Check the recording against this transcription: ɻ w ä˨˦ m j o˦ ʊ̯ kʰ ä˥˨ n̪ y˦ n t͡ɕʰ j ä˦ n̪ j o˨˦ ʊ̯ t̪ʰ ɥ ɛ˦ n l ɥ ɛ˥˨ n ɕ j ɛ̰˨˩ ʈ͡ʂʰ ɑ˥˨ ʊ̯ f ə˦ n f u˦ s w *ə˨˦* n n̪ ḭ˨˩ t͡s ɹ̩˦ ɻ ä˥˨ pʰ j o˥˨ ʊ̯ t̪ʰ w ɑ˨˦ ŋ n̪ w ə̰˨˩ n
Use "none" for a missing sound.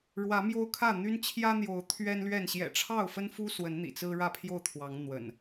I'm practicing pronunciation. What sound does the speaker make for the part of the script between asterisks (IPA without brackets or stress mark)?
ə˨˦